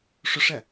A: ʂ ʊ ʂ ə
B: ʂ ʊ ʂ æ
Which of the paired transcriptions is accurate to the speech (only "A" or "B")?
B